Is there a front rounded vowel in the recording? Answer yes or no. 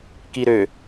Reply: yes